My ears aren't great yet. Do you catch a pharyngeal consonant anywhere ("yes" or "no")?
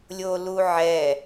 yes